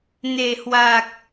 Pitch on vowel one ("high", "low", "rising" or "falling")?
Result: low